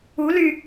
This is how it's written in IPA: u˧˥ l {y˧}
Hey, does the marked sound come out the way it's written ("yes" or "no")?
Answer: yes